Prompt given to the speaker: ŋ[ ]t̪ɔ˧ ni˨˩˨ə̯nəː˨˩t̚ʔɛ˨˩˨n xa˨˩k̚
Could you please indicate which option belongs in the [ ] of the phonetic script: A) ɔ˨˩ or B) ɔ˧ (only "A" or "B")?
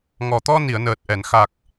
A